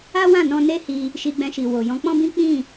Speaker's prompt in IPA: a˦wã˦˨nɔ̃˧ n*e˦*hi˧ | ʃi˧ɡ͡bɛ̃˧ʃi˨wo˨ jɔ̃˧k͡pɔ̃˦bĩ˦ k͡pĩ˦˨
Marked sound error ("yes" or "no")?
no